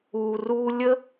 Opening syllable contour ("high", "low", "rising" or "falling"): low